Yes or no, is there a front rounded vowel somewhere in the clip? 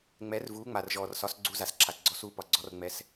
no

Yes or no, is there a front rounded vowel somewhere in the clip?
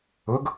no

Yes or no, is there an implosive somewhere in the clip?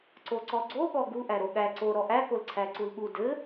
yes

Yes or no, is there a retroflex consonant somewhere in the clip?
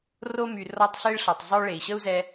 yes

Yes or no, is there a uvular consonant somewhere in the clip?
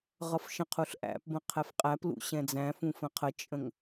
yes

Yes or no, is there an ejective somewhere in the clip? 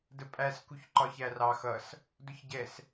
yes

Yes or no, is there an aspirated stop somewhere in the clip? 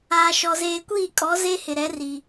no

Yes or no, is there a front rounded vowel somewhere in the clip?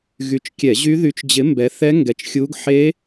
yes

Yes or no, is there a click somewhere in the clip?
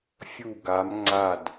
yes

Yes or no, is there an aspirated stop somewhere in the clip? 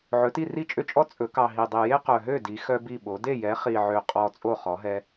no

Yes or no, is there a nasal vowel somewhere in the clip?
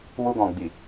yes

